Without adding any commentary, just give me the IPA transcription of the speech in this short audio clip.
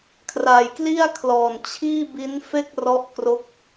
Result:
kʰra˨˩jkli˥˩a̯kʰlɔː˨˩n t͡ɕʰiː˥˩bi˦˥n fe˥˩k̚rɔ˦˥ʔkro˦˥k̚

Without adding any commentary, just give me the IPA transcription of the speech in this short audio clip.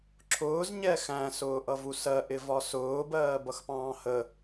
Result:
ǁʰʊːz ɲɛxæ̃ sʊːʔʌvusɜ ʔɪvɒsʊː bɜːbʌxpɑ̃ːhə

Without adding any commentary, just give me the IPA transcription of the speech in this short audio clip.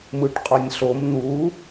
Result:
mɯʈqʼɒnʲɬom n̪u

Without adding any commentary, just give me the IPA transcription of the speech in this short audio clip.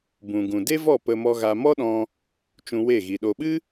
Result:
bũ˨ɡũ˨ de˦vɔ˦˨ pə˧ mɔ˧ɣa˧ mɔ˦ɗɔ̃˧ | t͡ʃũ˧we˦˨ɣi˨ ɗo˨ɓɨ˦

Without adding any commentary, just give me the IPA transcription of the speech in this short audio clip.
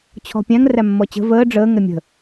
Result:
t͡ɕʰɔ̤pʲæ̃ŋ ræmːɔt͡ɕə̤ vəː ɖ͡ʐəː ŋɛmʲə̤

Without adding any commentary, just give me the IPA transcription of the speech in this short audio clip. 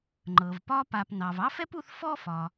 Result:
ŋ͡ǃɤ˩vpɒ˦pa˨p nɑ˩v ɑ˥fɛ˥p u˦θ fɔ˦ fɒ˩

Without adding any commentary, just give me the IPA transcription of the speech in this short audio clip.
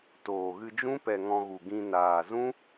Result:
toː˨ɣɨ˧d͡ʒũ˦ pɛ˨ ŋɔ̃˧ɣu˨ɡĩ˧ naː˨zũ˦

